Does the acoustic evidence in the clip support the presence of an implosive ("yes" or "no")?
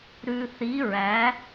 no